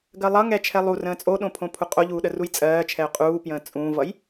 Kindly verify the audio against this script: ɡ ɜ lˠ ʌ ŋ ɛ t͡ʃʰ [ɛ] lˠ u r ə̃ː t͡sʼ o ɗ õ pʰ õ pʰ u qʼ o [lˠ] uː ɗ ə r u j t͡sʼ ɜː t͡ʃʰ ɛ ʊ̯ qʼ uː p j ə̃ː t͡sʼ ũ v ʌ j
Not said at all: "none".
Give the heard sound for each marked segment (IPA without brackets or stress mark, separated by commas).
ɛ, ʎ